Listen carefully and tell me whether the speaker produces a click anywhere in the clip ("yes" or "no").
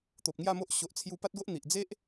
no